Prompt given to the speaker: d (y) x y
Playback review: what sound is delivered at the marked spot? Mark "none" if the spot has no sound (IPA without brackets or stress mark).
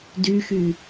y